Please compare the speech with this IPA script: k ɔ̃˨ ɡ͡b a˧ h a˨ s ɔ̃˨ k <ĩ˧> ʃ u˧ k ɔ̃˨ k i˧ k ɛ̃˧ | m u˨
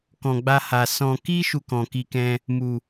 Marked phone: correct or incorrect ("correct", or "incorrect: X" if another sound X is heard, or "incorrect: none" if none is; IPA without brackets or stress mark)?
incorrect: i˧